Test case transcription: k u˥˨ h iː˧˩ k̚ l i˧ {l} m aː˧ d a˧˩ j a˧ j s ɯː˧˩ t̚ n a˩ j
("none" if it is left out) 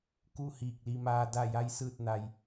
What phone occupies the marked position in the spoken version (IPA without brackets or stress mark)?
none